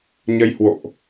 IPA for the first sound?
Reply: ɲ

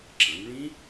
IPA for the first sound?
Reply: ǁ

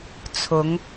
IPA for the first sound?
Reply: t͡sʰ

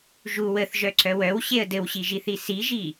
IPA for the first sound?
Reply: ʒ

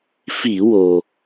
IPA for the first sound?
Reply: f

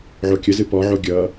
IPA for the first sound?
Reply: ʕ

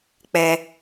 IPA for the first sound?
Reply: k͡p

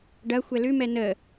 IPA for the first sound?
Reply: ɖ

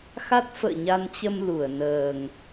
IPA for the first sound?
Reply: x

